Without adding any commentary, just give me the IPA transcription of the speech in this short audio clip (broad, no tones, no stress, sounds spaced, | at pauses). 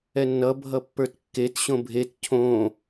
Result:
ɛ nː ʌ bʱ ʌ pː ə˞ t kː e t ɕ õ bʱ e t cʰ õ